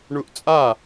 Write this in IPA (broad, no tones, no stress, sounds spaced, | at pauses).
ɳ u ʔ t͡sʼ a